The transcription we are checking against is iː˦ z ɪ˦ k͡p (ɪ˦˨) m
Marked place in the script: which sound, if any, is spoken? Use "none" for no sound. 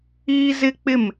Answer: ɪ˦˨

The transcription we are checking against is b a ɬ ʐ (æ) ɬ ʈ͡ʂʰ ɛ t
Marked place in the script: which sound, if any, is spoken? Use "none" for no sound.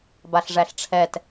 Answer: æ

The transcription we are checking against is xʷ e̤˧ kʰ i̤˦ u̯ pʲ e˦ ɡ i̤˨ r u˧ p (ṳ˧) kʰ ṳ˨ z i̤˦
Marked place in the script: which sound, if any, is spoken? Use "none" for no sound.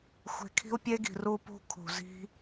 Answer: ṳ˧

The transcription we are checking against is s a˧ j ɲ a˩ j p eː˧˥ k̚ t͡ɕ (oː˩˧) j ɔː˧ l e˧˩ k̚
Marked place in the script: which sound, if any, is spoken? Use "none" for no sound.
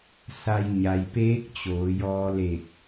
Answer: oː˩˧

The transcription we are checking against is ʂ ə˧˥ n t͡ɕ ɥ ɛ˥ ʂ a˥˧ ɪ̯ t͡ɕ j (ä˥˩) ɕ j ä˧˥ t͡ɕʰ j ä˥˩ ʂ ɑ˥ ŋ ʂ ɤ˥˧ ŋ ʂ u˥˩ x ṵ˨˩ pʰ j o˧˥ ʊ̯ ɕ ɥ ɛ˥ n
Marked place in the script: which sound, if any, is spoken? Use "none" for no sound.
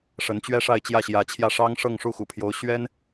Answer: ä˥˩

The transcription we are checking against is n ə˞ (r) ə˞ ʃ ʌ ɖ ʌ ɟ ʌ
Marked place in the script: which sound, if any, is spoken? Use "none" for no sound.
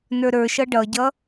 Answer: ɾ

